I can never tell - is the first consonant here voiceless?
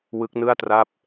no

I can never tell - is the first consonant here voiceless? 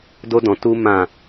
no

